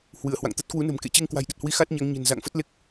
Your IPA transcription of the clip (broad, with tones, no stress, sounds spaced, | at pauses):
h w ɨ˧˩ ə̯ h w a̰˧˨ ŋ t̪ ə˦˥ t̚ k w u˨˦ n ə̤˨˩ m k ḛ˧˨ t͡ɕ e˧ ŋ k w a̤˨˩ j ɗ ə˨˩ t̚ h w i˨˦ x a˦˥ t̚ ɲ a˨˦ ŋ ɲ ə̤˨˩ n z a̰˧˨ ŋ f ə˦˥ t̚ l e˦˥ k̚